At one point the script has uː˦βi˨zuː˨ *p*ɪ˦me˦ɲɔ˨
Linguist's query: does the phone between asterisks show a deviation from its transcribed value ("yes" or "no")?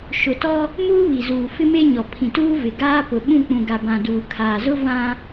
yes